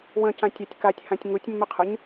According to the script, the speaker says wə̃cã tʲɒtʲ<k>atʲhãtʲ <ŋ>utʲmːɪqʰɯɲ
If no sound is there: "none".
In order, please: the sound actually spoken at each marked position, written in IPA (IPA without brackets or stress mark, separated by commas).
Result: k, ŋ